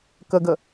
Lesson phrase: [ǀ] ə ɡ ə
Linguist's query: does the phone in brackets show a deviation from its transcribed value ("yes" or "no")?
yes